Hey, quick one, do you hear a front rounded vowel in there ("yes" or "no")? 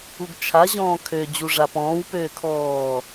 yes